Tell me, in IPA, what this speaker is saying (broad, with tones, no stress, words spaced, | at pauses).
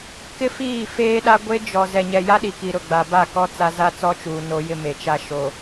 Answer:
kɪ˦fiː˦˨ feː˦ɗa˦ ɡʷe˦ d͡ʒɔ˨ zɛ˨ɲɛ˨ja˦ɗi˨ ki˨ɾʊ˦˨ɡ͡ba˨ba˦˨ kɔ˦ t͡sa˦ za˦t͡sɔ˦t͡ʃuː˨ no˦jɪ˦me˨t͡ʃa˦ ʃo˨